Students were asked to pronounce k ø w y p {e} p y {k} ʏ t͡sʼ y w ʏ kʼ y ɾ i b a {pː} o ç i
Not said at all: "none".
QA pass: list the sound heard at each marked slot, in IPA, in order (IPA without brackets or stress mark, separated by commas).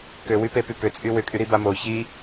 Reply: e, p, m